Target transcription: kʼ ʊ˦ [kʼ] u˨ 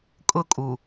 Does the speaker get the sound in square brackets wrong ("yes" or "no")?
no